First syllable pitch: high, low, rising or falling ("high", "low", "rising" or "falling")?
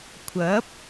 rising